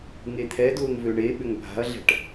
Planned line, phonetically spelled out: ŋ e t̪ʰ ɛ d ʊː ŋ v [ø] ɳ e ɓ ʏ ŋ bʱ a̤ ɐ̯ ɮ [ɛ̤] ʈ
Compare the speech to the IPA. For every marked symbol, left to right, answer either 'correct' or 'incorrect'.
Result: correct, correct

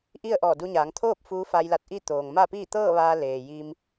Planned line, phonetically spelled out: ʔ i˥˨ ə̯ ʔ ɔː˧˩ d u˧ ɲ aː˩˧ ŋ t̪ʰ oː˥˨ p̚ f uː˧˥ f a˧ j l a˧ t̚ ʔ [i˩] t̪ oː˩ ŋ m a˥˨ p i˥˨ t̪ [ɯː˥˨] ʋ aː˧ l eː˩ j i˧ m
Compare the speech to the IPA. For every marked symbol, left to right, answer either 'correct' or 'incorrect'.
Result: incorrect: i˥˨, incorrect: ɤː˥˨

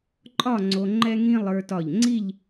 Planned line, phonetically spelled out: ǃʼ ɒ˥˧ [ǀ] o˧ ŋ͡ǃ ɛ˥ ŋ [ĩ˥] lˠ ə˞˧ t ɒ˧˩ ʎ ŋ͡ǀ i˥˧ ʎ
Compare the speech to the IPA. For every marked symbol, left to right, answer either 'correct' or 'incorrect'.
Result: incorrect: ŋ͡ǀ, correct

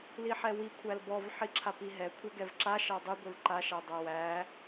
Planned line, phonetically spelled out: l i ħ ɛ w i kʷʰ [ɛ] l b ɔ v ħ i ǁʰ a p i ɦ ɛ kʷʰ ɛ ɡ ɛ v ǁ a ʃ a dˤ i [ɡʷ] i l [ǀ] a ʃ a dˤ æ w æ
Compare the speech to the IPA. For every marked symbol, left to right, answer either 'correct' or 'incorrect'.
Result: incorrect: æ, correct, incorrect: ǃ

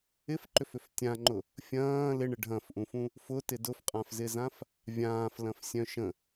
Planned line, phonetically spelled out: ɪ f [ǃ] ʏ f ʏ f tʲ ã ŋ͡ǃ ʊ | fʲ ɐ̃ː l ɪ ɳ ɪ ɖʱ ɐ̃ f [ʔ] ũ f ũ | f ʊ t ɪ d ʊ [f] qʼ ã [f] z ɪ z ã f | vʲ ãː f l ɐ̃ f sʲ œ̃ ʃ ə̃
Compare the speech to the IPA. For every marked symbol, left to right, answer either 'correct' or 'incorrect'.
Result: correct, correct, correct, correct

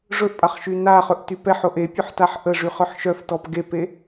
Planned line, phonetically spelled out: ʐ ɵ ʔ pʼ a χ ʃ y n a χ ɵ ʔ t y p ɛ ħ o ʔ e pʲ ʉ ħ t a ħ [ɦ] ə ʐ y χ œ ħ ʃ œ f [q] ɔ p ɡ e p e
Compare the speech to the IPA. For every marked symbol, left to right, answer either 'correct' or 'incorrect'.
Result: incorrect: ʔ, incorrect: t

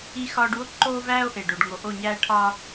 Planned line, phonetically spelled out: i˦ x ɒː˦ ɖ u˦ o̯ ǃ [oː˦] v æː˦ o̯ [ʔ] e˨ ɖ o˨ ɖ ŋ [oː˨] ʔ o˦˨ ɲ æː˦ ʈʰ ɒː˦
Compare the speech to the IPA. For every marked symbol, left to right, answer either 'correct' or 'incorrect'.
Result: correct, correct, incorrect: o˨

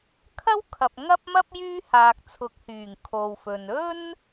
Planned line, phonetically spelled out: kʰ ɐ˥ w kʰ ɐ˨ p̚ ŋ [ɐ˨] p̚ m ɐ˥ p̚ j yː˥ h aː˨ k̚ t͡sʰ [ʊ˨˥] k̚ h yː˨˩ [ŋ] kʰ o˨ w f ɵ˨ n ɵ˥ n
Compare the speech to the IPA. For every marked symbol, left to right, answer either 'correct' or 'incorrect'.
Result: incorrect: ɐ˥, correct, correct

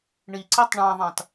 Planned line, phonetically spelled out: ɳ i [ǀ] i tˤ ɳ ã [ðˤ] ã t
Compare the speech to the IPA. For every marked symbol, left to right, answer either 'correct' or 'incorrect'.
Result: correct, correct

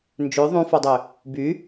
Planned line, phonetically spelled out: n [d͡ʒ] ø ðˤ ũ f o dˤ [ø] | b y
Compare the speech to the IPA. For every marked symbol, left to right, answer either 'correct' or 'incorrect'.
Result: correct, correct

